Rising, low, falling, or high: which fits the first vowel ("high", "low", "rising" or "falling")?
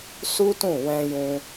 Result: high